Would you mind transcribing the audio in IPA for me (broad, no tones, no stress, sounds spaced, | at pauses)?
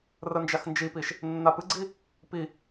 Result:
r ə n d͡ʒ a x n d͡ʒ i p i ʃ | nː a p ɨ ɡ͡ǀ i | p i